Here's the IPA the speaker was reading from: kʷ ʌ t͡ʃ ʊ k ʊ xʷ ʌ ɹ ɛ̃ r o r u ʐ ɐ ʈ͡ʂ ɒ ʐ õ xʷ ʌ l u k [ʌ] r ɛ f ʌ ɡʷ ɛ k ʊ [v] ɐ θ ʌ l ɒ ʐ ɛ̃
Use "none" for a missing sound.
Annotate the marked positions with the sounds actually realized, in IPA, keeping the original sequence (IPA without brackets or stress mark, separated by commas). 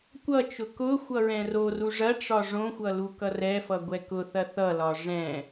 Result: ʌ, θ